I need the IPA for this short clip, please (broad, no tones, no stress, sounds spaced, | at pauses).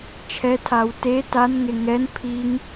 t͡ʃʰ ɛ tʰ a w t e t a n ŋ e ŋ ɛ n pʰ i ŋ